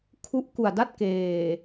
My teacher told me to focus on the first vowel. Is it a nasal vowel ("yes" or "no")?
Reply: no